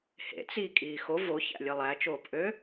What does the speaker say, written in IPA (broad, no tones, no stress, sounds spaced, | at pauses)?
h ḛ t͡s i kʼ iː x o v o ç æ̰ lʲ ɯ lˠ æ t͡ʃ oː p ʔ ø